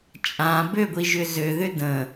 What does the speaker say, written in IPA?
t͡ʃʼã bøɡʷiʒʏ zøðʏ də̃

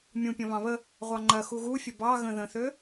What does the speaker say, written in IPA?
mʲũpʲɐ̃ βɑ̃βə | ʁʷɑŋ͡ǃɐ xuɣufʲə bɑ ɣə̃ ðə̃θø

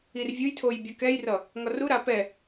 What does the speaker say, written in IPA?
irvʲujtʰoj bʲʌkɛjrʌ | ŋɒruɾa pɛ

